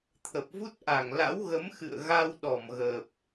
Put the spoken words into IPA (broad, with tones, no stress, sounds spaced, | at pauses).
t̪ʰ ə˨˩ p̚ v u˦˥ t̚ ʔ a˧˩ ŋ l a̰˧˥ w ɣ ə˨˦ m x ɨ̰˧˨ ə̯ ɣ a˧ w ɗ ɔ˧˩ m ɣ ə˨˩ p̚